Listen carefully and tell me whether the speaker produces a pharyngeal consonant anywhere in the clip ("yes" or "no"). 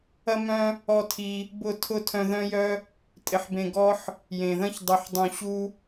yes